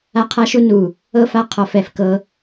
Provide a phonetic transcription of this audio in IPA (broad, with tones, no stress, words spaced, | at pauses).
a˦qʰa˦ʃu˦ nu˨ | ɤ˦fa˦ qʰɔ˨fɛ˨fkɤ˦